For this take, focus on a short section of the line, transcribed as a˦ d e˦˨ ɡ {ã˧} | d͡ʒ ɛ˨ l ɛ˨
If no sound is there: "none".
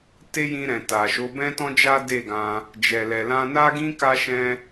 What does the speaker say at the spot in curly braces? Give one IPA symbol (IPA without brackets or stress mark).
ã˧